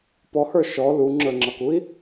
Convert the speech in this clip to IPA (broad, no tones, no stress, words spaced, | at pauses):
pɔhə˞ ʃɔ luŋ͡ǁə˞ŋ͡ǁʌkui̯